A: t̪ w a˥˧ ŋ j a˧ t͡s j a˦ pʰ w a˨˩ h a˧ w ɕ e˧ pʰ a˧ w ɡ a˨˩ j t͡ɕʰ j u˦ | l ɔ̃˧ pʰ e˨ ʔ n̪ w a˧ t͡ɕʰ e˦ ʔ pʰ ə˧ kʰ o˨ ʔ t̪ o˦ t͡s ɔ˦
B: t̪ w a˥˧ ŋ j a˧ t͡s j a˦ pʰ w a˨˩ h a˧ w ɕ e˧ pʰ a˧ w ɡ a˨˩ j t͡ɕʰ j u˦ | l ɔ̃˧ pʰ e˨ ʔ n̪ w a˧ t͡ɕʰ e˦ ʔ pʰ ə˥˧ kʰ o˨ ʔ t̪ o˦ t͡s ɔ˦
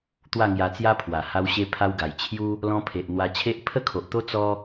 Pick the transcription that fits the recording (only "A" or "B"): B